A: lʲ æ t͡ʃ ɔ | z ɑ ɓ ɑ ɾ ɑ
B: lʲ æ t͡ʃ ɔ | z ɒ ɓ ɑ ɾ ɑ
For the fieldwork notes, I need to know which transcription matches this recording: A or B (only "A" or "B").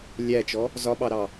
B